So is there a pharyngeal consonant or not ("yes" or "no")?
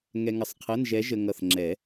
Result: no